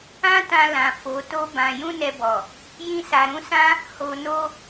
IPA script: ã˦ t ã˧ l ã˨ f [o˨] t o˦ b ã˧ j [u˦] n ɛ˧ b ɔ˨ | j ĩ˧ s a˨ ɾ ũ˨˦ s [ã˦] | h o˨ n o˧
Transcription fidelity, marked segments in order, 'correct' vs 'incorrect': incorrect, incorrect, correct

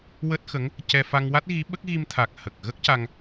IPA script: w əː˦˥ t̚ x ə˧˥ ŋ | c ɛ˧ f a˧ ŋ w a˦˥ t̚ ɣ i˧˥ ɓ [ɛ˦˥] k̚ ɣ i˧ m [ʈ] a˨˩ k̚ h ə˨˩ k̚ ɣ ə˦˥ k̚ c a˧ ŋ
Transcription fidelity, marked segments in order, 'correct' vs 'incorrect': incorrect, incorrect

